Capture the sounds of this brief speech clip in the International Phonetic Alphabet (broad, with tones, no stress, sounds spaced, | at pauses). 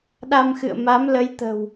ɗ a˧ m x ɨ̰˧˨ ə̯ m a˨˦ m l ə˨˦ j t̪ ə̤˨˩ w